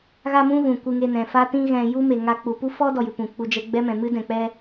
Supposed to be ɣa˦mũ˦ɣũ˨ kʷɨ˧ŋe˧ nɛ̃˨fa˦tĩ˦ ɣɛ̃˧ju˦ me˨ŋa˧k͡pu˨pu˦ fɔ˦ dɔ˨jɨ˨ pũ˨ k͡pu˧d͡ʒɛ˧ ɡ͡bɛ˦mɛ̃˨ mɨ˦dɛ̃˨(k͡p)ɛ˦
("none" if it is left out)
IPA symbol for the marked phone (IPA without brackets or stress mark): k͡p